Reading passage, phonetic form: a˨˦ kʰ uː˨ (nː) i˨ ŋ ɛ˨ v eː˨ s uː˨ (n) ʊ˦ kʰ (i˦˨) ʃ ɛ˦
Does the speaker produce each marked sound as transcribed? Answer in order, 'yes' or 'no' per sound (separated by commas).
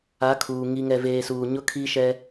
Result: no, no, no